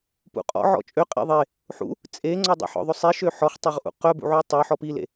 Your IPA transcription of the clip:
p ṵ qʼ ɔ̰ ʕ ɔ̰ t͡ʃʼ ø qʼ ḛ ðˤ e | ħ ṵ | t͡sʼ e ŋ͡ǀ ɔ dˤ ḛ ħ ɔ̰ ðˤ ɵ sˤ i ʃ ø ħ ɔ χ tˤ ɵ ʁ ʔ ṵ q œ b ṵ ʕ u tˤ œ ħ ɔ p i l ḛ

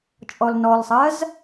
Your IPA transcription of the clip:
t͡ʃʼ ɔ l n ɔ l sˤ ɜ z

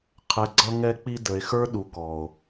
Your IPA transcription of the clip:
qʰ ɛ˨ ɡ͡ǀ ʌ˧ ŋ ɛ˧ k͡p i˧ d ə˨ e̯ x ə˞˦ ɗ u˨ k ɔ˨ o̯

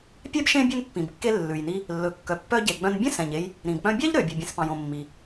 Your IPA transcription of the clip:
pʲ ɛ˥ b ʃ ẽ˥ bʲ ɵ˧ n pː ĩ˩ b kː e˧ lː ʉ˩ j n i˧ | lː ɵ˩ kː œ˩ pː œ˧ ɟ e˩ ɡ͡b œ̃˧ n bʲ ɛ̃˥ s ɛ̃˩ ɲ e˧ j | ɾ ĩ˩ b k͡p œ̃˧ bʲ ɑ˥ ʎ ɾ ø˩ bʲ ɵ˩ bʲ ẽ˩ s p ɑ̃˩ j õ˩ mː i˩

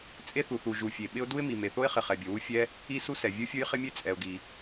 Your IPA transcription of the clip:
t͡sʼ e˥ θ u˩ θ u˩ ʒ u˩ fʲ e˩ ɓ ɪ˥ ʊ̯ d u˥ ɪ̯ m i˩ m e˩ θ o˥ ɪ̯ χ ɪ˩ χ ɛ˩ bʲ o˩ w u˥ fʲ ɛ˥ | i˥ s u˥ s ɛ˩ vʲ u˥ fʲ u˥ j χ ɪ˥ mʲ e˥ t͡sʼ ɛ˩ ʊ̯ ɡ i˩

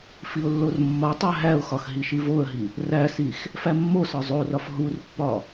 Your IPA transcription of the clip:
f i ʊ̯ lː o r mː ɒ tˤ æ ɦ æ ʊ̯ x ɒ x ɦ i ʃ i v o ə̯ ɦ i | r æ s i x | f æ mː o s ɒ zˤ o r ɒ f ɦ u r pː ɒ

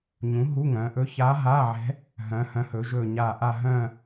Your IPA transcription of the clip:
ɲ ũ˩˥ ɦ u˧˥˧ ŋ œ̃˩˧ ʔ ɵ˧˥ ç a˧˥ ɦ a˧˥˧ ʕ ɛ̤˧˥ | ɦ œ̃˩˧ h œ̃˩˥ h ɵ˩˧ ʒ ɵ˧˩ ɲ a˧˩ ʔ a˥˧ ɦ œ̃˥˧

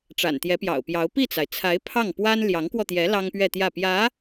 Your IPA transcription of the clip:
ʈ͡ʂ a̰˨˩ n t̪ j ɛ˧˥ p j ɑ̰˨˩ ʊ̯ p j ɑ˧˥ ʊ̯ p i˥˩ t͡s a˩ ɪ̯ t͡sʰ a˧˥ ɪ̯ pʰ ɑ˥˩ ŋ p w a˥ n l j ɑ˧˥ ŋ k w ɔ˧ t̪ j ɛ˧˥ l ɑ˥ ŋ p ɥ ɛ˥˧ t̪ j ä˥˩ p j ä˧˥

